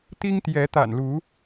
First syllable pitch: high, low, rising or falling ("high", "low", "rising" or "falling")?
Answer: high